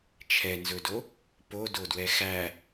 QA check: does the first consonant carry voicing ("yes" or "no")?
no